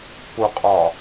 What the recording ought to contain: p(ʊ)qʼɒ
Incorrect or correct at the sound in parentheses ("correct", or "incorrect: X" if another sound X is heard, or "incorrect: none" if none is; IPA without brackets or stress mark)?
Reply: correct